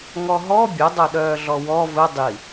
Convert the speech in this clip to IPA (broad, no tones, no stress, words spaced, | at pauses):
ŋɔɦɔ bʲɘdˤœɗœːɮɔ wɔ vɘ dˤi